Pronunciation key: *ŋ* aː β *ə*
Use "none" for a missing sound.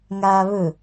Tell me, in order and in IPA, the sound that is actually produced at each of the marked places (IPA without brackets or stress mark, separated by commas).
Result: ŋ, ɵ